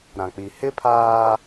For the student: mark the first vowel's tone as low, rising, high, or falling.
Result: low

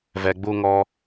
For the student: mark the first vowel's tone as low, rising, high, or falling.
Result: low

